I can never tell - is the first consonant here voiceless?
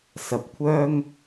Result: yes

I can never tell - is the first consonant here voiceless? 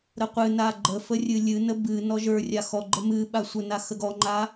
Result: no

